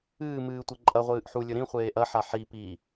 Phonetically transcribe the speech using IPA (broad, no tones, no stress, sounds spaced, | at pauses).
ɨː m ɨː tʷ e ǃʼ ɐ ʁʷ ɨː ʔ ħ u lʲ ɵ ɾ ĩ χʷ eː ʔ ɐ ħ a ħ i p i